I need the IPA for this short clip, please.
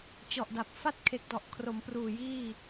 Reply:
t͡ɕ ɔ˨˩ ʔ d a˨˩ p̚ f a˥˩ t̚ kʰ e˨˩ k̚ d ɔ˨˩ ʔ kʰ r o˩˦ m p r uː˨˩ j iː˥˩

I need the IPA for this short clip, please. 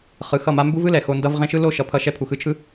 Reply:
χ ɯ˨ x ʌ˦˨ m a˦ m b u˦ v ɯ˦ l ɛ˨ x o˧ n d ʌ˦ v ʁ ẽ˦ ʃ ɯ˦ l o˦ ʃ ʌ˨ pʰ ʌ˧ ʃ ɛ˧ pʰ u˨ x ɯ˧ t͡ʃʰ ɯ˦

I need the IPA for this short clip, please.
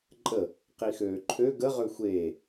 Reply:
ǃʼ ə | q i x øː ǃʰ ø ɡ ə ʁ ø xʷ eː

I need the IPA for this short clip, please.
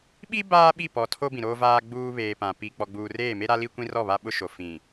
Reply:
ɓ i˦ b aː˦ ɓ i˦˨ p ɔ˨ tʰ o˦ b ĩ˨ ɾ oː˦ v aː˦ ɡ͡b uː˦ β eː˨ p ã˨ p i˨ k͡p ɔ˨ ɡ͡b uː˨ r eː˦˨ m e˦ ɾ a˦ l i˦ kʷ ĩ˦ r ɔ˦˨ β a˦ ɓ ʊ˦ ʃ o˨ f ĩ˨

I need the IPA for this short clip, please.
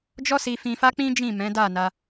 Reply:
d͡ʒ ɔ˦ s i˧ f ĩ˧ f a˦ k͡p ĩ˦ d͡ʒ ĩ˦˨ m ɛ̃˨˦ d a˦˨ n a˧

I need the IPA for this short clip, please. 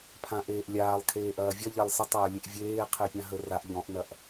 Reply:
pʰ ã ʔ eː ʔ lʲ aː lˠ kʰ eː ʔ ɐː vʲ ɐ ʎ a lˠ s ə tˤ ɐː lʲ e ʔ vʲ eː qʰ e pʲ ã ɦ ə r a ʔ ʎ ɔ̃ ʔ n ɐ ʔ

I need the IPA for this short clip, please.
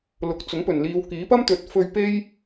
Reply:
l ʊ˨ k̚ t͡s ʊ˨˥ ŋ p ɵ˨˩ n l iː˨˧ w k iː˨˥ p ɐ˥ m t̪ ɵ˨˥ t̚ f ɵ˧ ɥ p e˥ j

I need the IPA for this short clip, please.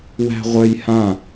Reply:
w æ̤ ʁʷ œ j h ã

